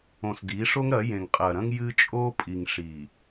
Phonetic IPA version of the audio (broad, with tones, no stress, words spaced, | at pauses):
õ˨sdi˨˦ʂo˦ŋɾɐ˨˦ jẽ˨ŋqʼɐ˨ɾɐ̃˦ŋ jɨ˦t͡ʃʼo˦pʼi˨ŋ ʂi˨